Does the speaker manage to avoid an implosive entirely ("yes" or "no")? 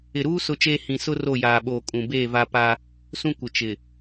no